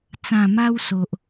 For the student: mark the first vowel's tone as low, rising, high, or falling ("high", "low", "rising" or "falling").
low